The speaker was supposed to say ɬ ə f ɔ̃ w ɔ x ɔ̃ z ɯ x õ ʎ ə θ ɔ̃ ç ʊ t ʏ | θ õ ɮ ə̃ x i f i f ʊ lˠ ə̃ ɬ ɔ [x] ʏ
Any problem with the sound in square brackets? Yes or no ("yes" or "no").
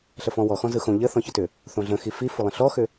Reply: no